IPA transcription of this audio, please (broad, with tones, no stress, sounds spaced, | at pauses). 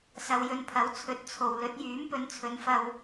s ɐ˧ w j ɵ˧ n pʰ ɐ˨˥ w t͡sʰ ɵ˨˥ t̚ t͡sʰ o˨ w l ɵ˨˥ t̚ j yː˨˥ m p ɵ˨˧ n t͡sʰ ɵ˨˧ n f ɐ˧ w